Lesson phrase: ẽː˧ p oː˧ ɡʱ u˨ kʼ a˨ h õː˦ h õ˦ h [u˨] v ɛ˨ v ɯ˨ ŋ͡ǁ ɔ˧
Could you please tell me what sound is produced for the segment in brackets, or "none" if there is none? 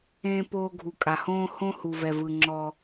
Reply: u˨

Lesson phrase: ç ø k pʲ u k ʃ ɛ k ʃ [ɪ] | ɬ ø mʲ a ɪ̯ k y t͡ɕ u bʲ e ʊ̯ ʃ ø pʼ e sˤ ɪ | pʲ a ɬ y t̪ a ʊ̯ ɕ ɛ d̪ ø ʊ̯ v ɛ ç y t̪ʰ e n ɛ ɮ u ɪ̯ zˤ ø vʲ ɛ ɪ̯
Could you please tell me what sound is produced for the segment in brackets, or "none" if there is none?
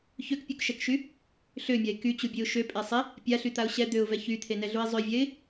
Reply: y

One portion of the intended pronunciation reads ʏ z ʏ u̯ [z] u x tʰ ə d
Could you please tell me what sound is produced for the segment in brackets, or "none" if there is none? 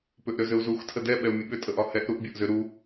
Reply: z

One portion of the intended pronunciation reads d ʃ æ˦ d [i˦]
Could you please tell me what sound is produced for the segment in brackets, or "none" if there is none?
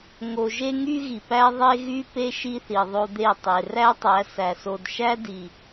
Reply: i˨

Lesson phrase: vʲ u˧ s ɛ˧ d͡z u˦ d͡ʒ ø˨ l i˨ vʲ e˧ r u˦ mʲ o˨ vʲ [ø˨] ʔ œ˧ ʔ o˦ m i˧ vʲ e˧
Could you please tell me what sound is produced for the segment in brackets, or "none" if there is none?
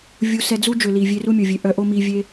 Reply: ø˨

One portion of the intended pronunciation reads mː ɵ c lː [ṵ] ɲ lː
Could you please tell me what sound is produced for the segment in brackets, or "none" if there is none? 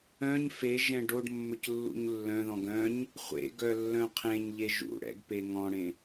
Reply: ṵ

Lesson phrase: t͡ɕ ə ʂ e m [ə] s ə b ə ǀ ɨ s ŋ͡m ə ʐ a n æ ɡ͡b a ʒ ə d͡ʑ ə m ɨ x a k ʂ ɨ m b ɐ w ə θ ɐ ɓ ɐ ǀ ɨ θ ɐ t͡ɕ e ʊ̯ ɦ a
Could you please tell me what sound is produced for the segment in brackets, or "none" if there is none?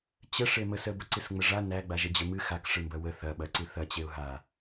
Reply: ə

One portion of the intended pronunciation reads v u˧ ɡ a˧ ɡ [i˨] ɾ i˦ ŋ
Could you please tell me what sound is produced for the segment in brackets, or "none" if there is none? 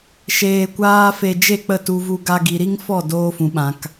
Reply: i˨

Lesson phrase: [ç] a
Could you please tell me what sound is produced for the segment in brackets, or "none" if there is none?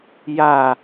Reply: j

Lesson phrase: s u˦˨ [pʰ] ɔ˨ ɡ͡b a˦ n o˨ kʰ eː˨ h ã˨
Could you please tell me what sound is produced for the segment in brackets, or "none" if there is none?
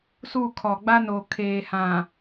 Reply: kʰ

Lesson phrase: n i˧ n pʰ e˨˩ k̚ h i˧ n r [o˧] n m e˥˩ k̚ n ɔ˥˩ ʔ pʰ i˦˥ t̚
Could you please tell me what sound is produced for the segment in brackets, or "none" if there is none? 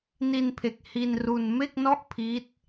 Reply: u˧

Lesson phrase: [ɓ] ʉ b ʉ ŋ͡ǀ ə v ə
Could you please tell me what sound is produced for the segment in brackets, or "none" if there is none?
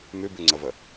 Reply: m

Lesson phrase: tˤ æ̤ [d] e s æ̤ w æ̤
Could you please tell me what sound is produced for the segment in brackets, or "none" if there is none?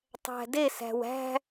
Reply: d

